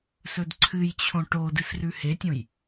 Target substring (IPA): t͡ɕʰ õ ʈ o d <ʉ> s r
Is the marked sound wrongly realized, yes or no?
yes